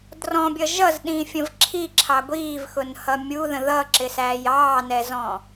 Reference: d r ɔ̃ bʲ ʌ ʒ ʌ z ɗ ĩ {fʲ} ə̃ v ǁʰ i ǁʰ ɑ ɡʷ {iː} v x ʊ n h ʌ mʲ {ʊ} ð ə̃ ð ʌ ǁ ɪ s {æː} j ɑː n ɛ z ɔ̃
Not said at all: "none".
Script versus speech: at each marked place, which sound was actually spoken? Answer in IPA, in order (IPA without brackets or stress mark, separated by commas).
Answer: fʲ, iː, u, æː